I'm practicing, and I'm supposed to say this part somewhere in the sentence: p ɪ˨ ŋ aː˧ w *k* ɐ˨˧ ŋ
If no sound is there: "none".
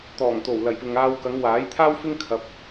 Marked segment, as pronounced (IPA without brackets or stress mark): k